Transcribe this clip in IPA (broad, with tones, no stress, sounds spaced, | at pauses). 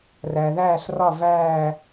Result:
r æ˩ ð æː˦˨ ɬ r ɒ˦˨ v æː˦˨